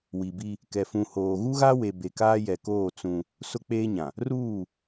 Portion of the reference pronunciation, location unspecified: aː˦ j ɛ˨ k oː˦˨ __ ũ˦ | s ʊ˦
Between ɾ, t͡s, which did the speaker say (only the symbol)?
t͡s